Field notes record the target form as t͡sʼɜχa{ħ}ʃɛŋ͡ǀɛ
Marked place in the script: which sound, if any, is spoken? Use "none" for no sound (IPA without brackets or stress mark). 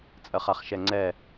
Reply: χ